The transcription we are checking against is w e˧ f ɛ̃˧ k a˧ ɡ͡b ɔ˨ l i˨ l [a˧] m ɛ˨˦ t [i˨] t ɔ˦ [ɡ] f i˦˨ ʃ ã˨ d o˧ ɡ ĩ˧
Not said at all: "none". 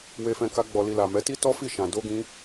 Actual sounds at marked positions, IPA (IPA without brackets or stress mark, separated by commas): a˨, i˦, none